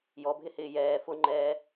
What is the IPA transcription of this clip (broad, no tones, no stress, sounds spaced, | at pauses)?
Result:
j ɔ bʱ ɪ h ɪː j ɛː f ʊ ŋ͡ǃ ɛː